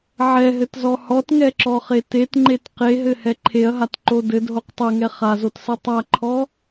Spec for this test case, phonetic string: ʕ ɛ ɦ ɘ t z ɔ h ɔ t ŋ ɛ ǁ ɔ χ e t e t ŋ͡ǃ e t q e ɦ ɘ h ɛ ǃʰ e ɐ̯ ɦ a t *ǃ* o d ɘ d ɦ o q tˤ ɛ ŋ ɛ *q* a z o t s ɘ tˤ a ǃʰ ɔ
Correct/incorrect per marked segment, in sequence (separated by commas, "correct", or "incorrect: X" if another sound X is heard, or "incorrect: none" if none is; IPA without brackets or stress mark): correct, incorrect: χ